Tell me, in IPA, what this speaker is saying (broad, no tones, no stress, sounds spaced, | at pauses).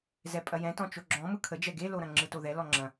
z ɛ pʼ ɐ j ɛ̃ t ɔ̃ t͡ʃ o ɡ͡ǁ ɔ̃ m ɯ kʰ ə d͡ʒ ɛ ɡ e l o ɾ ɐ̃ ŋ͡ǁ ɯ t o ð ɛ l ɔ ŋ͡ǁ ɐ̃